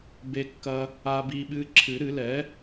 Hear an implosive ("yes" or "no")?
yes